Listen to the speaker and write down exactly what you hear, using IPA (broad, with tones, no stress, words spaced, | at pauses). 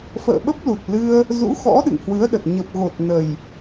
fə̰ː˧˨ɓə˦˥p̚lu˨˩t̚ lɨ˧ə̯ | zṵ˧˥xɔ̰˧˥ ɗɨ̰˧˨ŋhwɨ˨˦ə̯ɗə˨˩t̚ ɲə˨˩p̚ɣo˨˩t̚ nə˨˩j